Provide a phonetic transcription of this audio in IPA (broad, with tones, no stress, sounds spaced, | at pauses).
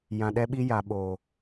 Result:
j ã˨ ɗ ɛ˦ ɓ i˦ j a˨ ɓ oː˨